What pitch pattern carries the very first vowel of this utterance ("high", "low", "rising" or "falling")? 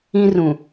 high